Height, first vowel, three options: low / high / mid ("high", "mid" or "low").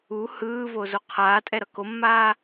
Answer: high